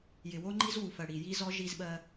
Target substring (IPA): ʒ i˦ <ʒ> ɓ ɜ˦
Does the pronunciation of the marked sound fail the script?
yes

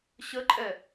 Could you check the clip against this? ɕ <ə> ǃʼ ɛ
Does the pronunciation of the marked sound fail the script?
no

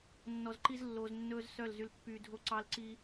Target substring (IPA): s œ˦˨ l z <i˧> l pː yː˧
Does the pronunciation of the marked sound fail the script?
yes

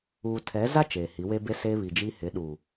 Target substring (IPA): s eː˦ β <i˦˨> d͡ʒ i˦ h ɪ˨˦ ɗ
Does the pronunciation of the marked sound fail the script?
yes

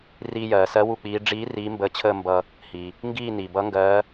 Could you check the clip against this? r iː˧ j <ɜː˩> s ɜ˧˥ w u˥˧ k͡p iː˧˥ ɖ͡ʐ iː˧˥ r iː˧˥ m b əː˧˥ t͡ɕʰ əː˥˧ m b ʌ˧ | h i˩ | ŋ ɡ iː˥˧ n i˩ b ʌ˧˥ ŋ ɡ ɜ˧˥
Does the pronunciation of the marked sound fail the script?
no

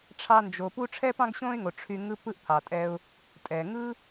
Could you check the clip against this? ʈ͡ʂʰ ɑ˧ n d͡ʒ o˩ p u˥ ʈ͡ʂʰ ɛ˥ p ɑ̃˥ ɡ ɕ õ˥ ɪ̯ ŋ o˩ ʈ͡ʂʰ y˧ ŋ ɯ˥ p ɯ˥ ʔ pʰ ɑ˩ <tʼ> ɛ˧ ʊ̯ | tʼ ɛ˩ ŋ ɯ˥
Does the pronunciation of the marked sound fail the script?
no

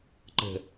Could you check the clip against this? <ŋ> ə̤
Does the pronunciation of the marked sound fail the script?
yes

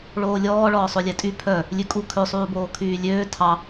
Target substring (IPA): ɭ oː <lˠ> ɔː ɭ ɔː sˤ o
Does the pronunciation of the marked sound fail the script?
yes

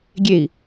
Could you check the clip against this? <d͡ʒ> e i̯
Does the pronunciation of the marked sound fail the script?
yes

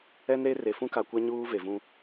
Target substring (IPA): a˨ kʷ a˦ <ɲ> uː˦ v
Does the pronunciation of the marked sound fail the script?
no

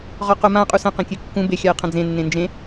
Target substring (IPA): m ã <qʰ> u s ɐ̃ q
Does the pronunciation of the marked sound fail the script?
yes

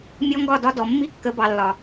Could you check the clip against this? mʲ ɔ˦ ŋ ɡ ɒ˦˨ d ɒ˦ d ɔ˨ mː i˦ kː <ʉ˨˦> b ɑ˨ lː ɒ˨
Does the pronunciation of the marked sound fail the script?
yes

